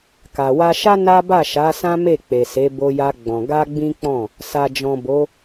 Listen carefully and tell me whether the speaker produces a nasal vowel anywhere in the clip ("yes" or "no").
yes